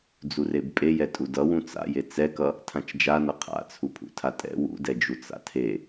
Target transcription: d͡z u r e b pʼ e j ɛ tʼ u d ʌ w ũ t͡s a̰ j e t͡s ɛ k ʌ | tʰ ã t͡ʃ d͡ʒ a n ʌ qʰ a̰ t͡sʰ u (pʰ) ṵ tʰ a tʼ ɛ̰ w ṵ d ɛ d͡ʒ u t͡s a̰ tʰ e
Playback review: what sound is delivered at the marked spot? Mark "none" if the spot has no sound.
pʰ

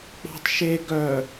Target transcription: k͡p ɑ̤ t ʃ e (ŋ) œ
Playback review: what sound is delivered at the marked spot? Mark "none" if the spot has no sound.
ɡ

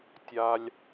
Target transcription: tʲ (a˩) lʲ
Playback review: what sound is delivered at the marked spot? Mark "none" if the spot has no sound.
a˩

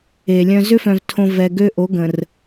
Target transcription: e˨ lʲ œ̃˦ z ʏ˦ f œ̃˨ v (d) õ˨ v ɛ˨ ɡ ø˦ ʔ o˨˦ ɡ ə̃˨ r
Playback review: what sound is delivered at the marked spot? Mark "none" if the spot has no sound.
tʰ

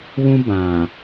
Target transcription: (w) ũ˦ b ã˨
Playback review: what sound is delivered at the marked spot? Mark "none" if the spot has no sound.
w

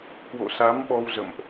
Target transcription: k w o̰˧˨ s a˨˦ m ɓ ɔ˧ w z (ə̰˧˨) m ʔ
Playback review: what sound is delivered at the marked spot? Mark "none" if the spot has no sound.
ə̰˧˨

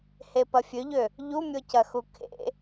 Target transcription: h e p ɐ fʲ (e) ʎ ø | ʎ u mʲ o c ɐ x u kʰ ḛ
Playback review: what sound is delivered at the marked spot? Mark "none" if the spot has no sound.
ø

